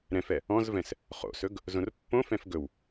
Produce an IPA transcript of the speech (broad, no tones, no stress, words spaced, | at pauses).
ɾɛ̃fɛ | ɔ̃zvɛ̃s | χo̰sɵɡ | zõrpːõfɛ̃f ɡɵw